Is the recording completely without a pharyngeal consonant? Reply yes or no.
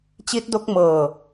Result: yes